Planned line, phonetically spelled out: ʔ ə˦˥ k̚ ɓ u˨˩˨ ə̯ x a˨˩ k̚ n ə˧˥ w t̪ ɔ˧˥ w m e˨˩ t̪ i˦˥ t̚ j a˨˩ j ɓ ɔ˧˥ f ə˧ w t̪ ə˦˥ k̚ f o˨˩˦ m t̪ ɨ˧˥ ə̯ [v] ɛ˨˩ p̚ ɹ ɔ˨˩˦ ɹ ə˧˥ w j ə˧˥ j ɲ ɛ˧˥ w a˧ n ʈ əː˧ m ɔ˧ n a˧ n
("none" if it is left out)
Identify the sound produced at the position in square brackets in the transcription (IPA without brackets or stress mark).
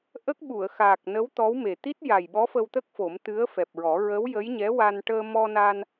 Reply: f